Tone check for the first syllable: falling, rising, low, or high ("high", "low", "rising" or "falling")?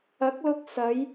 rising